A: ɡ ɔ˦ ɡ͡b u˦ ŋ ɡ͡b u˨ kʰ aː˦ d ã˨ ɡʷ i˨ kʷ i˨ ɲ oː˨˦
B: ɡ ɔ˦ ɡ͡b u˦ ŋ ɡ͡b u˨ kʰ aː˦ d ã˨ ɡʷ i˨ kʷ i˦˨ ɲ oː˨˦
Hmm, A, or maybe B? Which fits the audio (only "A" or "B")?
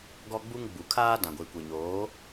A